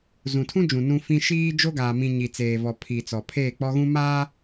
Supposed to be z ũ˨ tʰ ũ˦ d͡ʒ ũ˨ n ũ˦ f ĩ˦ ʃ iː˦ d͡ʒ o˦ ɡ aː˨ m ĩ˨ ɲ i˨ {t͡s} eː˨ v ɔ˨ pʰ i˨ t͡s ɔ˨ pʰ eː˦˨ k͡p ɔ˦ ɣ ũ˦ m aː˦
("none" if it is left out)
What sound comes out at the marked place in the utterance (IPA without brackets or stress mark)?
t͡s